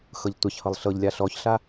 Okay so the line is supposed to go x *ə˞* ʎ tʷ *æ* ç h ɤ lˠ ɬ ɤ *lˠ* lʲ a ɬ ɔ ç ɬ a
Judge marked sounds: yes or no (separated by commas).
no, no, no